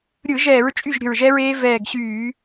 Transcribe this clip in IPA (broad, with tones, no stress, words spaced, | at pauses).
ɾʲɯ˧˩˧ʒɛː˧˩˧ɹ t͡ʃʼy˥˩ʒɾʲə̤˧˩ɹʒɛ˦˥ɹeː˦˥ vɛː˧˩ɡɕyː˧˩˧